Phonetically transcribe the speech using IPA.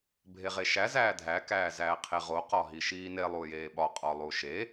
bʱ e ʁ e ʃ æ z æː dʱ æ k æː z æː qʰ e ʁ o q ɒ ɦ i ʃ iː n e lˠ uː j eː ɓ ɒ qʼ ɒ lˠ u ʃ e

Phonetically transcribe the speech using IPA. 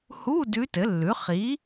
h u˧˥˧ d ʉ˧˥ t ɘ˩˥ lː ʉ˩˥ χ i˩˥

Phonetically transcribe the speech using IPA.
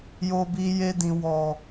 j o˧ b i˧ j e˧ d ĩ˨ w ɔ˨

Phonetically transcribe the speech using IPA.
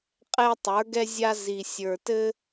qʼ ɛ˥ tˤ ə˞˧˥ ɡ ɛ˥ zʲ a˥ z i˧ sʲ ə˞˧ t ɘ˥

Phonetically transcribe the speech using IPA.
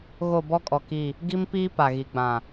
ɣ o˦˨ b ɔ˦ kʼ ɔ˨ k i˦˨ | ɡ i˦ m p iː˦ p a˨ ɣ i˨ ɡ͡b ã˨

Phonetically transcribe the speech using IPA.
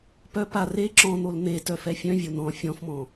p œ p a r e ǁ ɔ̃ n̪ o l n̪ e t œ f ɛ fʲ œ̃ vʲ o n ɔ̃ fʲ ɔ̃ f m ɔ̃

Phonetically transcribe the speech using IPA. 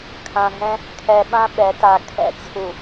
kʰ ã˨ ɦ ɛ̃˦ | kʰ ɛ˨ ɓ ã˦ ɓ ɛ˨˦ t a˨ kʰ ɛ̰˨ t͡sʰ u˨

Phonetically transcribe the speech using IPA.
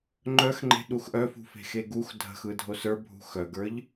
ŋ͡ǃ œ x ŋ͡ǃ e̤ ɗ u x ʔ œ f ṳ f e̤ x e ɡ u x dʱ ə̤ x ɯ dʱ o s ə˞ bʱ ṳ x œ ɡ ə˞ ʎ

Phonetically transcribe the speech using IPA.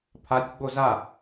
pʰ a tʲ ɡ͡b o z a

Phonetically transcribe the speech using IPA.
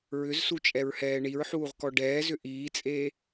ɹ ʏ z s u t͡ʃʼ ɛ ɹ h ɛː ɳ i ɹ ħ uː ʁ k ɔ ɖ ɛː z ʏ ʔ iː t͡sʼ eː

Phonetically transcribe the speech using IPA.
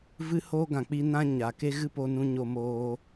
v ɨ˦ h oː˦ ɡ ã˨ k͡p i˦ n ã˦ ɲ a˨ k e˦ ɣ ɨ˦ p o˧ n ũ˧ ɲ o˧ m oː˧

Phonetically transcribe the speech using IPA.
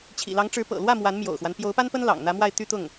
t͡ɕʰ ḭ˨˩ l ɑ˧˥ ŋ ʈ͡ʂ ɻ̩˧˥ p ɤ̰˨˩ l w ä˥˩ m w a˧˥ n m j o̰˨˩ ʊ̯ x w a˦ n p j o˧˥ ʊ̯ p a˥ n p ə˥ n l ɑ̰˨˩ ŋ n̪ ä˧˥ m w a˥˧ ɪ̯ t̪ y˥˧ t̪ ʊ˥˩ ŋ

